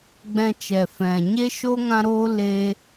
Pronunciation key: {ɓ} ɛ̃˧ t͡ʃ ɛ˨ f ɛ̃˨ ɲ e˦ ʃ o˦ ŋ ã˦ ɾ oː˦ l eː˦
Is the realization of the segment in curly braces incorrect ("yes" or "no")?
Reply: yes